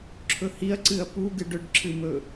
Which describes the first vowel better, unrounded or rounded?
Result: rounded